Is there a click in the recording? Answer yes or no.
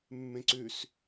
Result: yes